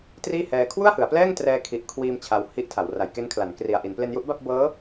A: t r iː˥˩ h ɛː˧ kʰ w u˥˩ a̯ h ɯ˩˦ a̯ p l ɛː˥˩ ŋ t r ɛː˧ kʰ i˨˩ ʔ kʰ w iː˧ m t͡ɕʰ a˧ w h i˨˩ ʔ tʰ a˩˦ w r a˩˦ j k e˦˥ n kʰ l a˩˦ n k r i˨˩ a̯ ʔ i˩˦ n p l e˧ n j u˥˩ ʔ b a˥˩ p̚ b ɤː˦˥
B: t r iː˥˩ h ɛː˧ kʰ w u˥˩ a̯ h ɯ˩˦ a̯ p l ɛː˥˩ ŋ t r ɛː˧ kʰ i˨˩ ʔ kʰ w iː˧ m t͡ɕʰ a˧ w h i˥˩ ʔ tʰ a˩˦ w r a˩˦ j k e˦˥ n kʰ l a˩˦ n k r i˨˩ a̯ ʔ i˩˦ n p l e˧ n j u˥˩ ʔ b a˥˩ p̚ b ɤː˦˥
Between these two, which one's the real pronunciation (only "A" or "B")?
B